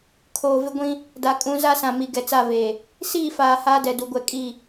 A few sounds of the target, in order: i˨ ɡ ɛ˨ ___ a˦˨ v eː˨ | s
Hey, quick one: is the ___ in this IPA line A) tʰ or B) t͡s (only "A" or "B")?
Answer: B